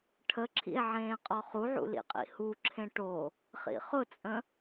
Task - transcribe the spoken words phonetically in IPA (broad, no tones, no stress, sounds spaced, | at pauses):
ʈʰ ə ǁʰ ḭ e̯ ʕ ẽː qʼ ɔ χ u ʕ ṵ l ḭ qʼ ḭ h u ǁʰ ẽ ʈ o | χ ḭ χ ʊ t͡sʼ ə̃